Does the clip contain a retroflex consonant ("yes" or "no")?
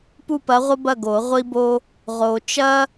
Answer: no